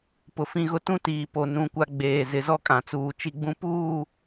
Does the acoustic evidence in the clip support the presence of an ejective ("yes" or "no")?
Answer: yes